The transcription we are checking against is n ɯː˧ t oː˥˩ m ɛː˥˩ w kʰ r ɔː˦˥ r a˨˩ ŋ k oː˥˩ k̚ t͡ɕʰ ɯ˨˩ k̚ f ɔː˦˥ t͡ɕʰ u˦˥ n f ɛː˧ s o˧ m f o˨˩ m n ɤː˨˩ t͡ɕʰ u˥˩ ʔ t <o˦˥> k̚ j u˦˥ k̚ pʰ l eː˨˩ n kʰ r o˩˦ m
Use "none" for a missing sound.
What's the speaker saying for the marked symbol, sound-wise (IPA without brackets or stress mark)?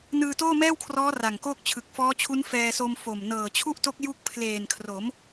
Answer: o˦˥